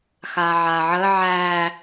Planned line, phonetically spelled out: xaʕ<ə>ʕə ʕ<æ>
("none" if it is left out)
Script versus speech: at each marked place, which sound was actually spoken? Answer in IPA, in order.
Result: a, æ

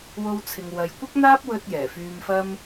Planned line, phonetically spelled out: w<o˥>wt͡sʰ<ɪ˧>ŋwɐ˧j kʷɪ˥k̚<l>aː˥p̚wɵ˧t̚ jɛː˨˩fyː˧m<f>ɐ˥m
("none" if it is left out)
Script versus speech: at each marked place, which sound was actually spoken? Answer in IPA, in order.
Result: o˥, ɪ˧, n̪, f

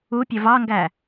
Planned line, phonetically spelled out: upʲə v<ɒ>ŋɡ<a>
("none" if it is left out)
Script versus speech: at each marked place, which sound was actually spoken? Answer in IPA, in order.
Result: ɑ, æ

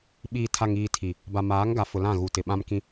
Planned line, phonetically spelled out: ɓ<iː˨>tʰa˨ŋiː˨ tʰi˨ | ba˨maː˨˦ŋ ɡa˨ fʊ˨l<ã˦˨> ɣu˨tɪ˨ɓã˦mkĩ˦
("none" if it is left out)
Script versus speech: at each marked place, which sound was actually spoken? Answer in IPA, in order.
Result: iː˨, ã˦˨

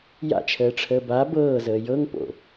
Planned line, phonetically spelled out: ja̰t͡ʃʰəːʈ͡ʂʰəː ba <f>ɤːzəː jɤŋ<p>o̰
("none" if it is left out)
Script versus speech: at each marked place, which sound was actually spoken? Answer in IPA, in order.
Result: b, p

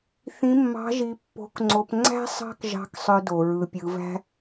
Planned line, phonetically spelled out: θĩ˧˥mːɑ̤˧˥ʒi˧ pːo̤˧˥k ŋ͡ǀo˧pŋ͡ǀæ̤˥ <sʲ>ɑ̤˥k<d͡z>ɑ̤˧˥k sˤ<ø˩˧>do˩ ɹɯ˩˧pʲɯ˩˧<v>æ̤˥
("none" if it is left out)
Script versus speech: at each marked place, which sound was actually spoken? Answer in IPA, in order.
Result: sˤ, ʒ, ø˧, v

